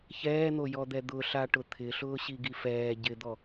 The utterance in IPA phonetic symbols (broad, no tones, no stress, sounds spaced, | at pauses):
ç ɛː n̪ o j ɔ d̪ ɛ d̪ ʊ ɬ a ʈ ʊ t̪ʰ ɪ ɬ ʊː ɕ i ɡ i f ɛː ɟ ɪ d̪ ɔ